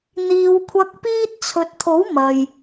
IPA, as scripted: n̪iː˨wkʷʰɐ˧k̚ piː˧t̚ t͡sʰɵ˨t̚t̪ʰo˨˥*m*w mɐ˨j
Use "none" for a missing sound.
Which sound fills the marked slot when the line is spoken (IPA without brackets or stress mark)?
none